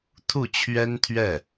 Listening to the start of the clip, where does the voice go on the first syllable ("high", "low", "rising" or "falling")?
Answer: falling